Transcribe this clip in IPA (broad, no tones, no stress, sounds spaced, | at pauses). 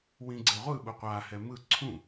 w ĩ ɡ͡ǀ e ʁʷ ɯ ɓ u qʷ a h ɛ m ɯ ǀʰ ũ